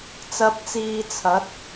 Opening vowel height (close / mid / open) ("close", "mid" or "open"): open